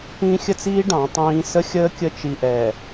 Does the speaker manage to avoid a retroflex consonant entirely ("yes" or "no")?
no